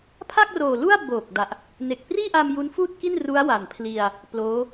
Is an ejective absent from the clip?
yes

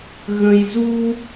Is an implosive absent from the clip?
yes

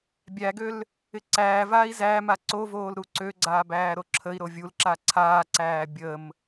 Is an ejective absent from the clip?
yes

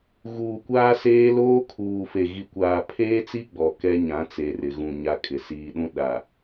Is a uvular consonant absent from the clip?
yes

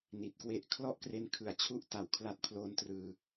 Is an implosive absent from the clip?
yes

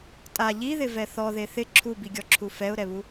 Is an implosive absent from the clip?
yes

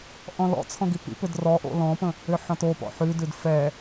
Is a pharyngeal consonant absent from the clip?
no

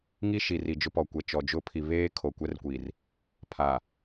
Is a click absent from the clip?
yes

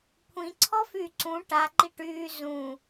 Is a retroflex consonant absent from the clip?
no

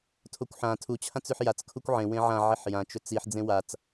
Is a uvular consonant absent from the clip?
yes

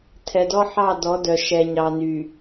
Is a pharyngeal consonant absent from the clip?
no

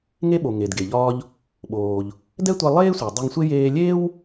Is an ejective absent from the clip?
yes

